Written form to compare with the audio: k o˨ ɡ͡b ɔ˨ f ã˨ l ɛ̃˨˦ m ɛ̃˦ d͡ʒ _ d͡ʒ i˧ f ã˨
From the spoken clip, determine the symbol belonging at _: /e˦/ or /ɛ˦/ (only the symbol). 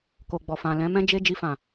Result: e˦